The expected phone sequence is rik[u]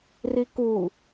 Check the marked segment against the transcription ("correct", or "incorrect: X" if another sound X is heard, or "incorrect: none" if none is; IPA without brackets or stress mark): correct